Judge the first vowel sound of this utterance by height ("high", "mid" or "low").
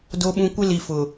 mid